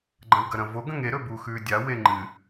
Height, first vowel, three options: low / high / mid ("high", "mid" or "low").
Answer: low